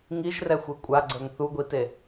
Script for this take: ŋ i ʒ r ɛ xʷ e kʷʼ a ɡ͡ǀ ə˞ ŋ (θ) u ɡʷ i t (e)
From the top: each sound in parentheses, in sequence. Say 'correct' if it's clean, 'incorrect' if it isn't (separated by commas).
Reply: correct, correct